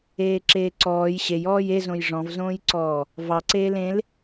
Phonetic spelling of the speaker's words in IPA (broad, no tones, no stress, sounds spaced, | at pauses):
eː ǁ eː ǀ ɔː j ɕ e j ɔː j e z õ j ʐ ɔ̃ v z õː j ǀ ɔː | v ɑ ǀ eː l ẽ l